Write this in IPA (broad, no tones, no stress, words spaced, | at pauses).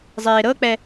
zˤeːɾɤk͡pɛ